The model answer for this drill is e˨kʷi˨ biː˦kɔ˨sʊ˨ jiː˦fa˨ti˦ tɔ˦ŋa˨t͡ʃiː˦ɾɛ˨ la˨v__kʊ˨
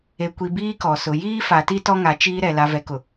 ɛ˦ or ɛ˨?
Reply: ɛ˨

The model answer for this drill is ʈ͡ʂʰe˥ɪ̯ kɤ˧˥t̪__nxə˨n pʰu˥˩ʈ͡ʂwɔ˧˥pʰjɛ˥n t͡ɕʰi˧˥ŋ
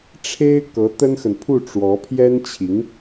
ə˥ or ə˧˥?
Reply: ə˥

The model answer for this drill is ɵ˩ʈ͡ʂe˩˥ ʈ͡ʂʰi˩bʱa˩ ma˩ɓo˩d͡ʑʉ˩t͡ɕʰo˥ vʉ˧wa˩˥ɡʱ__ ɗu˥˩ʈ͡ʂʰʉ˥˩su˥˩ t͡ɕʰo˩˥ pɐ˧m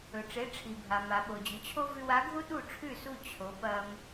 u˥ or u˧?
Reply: u˥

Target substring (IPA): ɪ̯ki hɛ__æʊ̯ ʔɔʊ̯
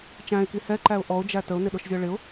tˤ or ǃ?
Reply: ǃ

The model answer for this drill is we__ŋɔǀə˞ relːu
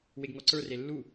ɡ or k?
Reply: ɡ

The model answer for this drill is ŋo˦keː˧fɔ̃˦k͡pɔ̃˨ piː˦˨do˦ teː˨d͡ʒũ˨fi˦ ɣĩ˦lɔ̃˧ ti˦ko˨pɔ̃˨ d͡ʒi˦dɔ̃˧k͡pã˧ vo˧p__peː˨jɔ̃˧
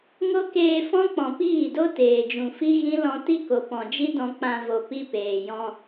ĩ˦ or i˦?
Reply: i˦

